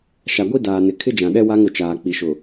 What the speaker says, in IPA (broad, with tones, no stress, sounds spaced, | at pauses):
ʃ a˨ ɡʷ i˦ d aː˨ n ɪ˨ kʰ ɪ˦ d͡ʒ ã˨ ɗ ɛ˦ w a˦ ŋ ʊ˨ t͡ʃ aː˨ k͡p i˨ ʃ ʊ˨